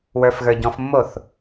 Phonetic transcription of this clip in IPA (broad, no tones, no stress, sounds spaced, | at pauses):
w ə˞ f ɣ ə˞ ɟ ɔ̃ f mː o θ